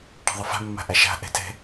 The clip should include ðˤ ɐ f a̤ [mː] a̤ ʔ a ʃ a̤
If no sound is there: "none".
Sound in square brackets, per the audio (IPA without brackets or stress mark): mː